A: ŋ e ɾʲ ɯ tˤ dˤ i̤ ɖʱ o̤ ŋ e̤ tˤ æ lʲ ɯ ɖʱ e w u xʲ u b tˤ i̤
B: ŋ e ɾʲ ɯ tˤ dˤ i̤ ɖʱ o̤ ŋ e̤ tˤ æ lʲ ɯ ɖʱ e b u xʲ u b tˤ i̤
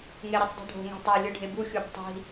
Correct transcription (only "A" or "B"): B